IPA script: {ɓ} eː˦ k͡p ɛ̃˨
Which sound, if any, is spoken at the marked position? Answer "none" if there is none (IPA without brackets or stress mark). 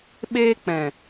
ɓ